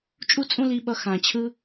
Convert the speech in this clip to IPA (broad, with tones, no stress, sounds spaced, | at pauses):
t͡ʃʼ u˦ t͡sʼ ũ˦ l i˧ ɓ ʌ˧ x ã˨ t͡ɕʰ ɯ˧